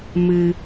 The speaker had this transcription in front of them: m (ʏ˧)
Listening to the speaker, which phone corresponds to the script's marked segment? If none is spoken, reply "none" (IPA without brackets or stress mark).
ɨ˧